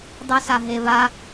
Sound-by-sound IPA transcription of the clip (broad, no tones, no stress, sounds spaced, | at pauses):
dˤ u s a ɦ e β a